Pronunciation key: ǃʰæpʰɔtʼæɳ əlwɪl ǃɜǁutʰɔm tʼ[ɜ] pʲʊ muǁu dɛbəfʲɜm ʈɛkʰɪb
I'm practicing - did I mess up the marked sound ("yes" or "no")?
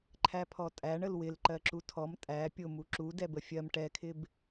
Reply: yes